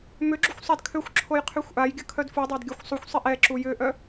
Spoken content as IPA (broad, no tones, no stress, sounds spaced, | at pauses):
m ʏ ɡ͡ǁ u xʷ sˤ a d kʰ ø xʷ ǁʰ o j qʰ y xʷ ʔ a j ɡʲ ə kʰ œ d f u dˤ a d ɡʲ œ xʷ sˤ u xʷ sˤ i ʔ ɛ ǁ u j ʏ ʔ œ